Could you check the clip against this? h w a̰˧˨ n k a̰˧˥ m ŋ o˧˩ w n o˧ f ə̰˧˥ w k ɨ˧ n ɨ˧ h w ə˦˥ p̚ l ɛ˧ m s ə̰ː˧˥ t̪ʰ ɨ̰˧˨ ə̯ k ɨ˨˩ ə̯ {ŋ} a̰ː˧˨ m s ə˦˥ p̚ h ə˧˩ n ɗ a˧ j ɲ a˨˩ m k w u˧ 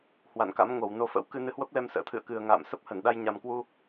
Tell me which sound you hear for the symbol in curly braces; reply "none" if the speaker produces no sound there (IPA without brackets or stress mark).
ŋ